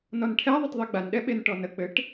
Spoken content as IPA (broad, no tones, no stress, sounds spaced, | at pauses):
n ɔ n ʈʰ ɛ ðˤ ə t ðˤ e ɡ͡b a n ɗ ɛ ɓ e n ʈ ɔ n ə k͡p ɘ ʈ